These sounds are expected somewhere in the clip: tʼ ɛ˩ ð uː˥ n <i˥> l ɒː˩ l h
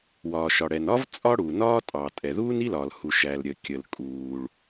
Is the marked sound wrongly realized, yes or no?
no